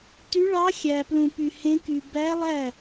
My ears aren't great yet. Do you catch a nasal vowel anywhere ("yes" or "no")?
yes